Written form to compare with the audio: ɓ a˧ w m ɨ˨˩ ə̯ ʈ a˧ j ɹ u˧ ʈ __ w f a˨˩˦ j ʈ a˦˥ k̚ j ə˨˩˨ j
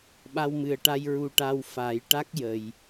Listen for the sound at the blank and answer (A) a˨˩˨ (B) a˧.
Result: B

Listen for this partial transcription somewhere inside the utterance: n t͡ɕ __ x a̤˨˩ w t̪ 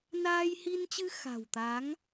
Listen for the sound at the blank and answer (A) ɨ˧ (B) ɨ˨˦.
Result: A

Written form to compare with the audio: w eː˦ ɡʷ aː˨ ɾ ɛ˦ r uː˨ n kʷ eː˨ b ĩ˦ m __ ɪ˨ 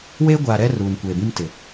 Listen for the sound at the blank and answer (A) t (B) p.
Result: A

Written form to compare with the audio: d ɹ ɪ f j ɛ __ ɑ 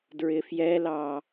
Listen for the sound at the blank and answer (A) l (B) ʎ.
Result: A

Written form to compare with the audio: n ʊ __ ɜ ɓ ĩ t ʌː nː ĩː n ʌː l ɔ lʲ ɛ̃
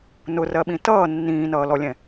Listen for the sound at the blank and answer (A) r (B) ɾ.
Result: A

